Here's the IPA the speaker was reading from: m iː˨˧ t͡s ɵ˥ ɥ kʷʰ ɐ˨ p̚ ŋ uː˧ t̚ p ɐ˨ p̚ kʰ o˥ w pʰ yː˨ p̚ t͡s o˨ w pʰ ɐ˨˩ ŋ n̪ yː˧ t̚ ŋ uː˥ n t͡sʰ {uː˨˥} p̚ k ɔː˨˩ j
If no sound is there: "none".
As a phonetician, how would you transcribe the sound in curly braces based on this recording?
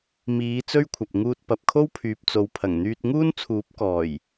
uː˨˥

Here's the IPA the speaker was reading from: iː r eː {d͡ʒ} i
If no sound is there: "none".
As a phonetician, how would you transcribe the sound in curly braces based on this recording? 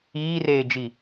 d͡ʒ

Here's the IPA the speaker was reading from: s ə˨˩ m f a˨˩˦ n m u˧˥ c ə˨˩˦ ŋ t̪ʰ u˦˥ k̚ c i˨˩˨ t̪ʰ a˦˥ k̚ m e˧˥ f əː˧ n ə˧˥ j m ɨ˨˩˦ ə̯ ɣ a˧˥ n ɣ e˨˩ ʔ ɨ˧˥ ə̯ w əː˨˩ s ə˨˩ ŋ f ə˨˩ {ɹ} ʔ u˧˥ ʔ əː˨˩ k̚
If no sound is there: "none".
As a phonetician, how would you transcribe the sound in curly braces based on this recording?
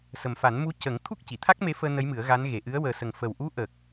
w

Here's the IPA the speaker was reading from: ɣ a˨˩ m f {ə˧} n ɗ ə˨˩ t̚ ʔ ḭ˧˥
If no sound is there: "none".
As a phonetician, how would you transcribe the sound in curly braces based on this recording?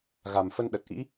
ə˧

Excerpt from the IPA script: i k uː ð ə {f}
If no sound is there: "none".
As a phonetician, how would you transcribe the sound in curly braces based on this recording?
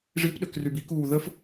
f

